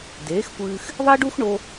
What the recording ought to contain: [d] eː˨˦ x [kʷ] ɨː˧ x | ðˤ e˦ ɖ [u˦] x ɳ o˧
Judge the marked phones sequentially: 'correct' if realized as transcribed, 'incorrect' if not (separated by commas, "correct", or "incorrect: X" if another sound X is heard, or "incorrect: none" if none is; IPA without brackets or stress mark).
correct, correct, correct